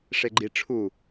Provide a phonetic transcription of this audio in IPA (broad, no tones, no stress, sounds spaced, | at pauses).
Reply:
ʂ e ɡ͡ǃ i ʈ͡ʂʰ u